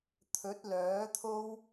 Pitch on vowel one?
rising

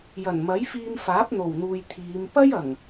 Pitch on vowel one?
low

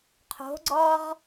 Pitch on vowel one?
rising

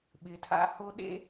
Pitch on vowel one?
low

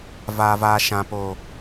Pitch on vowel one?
low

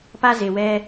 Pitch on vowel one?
high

